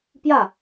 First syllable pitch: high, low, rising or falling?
falling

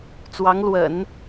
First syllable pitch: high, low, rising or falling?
rising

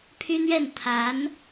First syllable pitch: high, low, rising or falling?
high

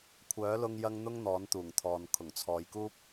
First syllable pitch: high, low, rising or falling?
rising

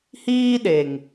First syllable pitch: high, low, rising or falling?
high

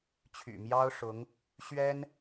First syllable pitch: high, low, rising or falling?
low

